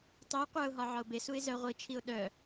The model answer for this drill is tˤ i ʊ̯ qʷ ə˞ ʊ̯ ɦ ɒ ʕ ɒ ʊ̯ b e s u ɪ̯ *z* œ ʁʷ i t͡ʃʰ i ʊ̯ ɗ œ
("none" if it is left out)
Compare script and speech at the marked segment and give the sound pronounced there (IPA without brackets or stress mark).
z